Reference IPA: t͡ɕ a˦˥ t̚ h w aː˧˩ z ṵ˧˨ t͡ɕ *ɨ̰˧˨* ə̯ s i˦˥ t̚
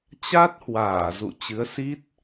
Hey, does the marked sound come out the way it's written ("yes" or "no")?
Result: no